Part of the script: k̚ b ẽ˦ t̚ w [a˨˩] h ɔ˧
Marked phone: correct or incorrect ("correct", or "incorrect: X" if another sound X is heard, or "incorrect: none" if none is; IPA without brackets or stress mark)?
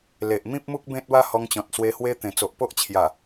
incorrect: a˦